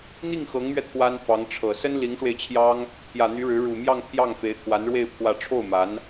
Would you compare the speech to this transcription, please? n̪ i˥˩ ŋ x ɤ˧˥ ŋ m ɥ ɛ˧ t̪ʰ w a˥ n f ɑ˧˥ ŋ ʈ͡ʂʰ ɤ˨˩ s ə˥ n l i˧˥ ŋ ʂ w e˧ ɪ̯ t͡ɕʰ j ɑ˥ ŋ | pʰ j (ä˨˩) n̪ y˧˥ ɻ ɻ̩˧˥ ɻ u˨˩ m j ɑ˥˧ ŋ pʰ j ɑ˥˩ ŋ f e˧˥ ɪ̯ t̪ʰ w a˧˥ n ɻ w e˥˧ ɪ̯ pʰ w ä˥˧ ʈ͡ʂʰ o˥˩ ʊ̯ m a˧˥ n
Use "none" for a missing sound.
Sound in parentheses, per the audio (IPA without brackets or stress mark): ä˨˩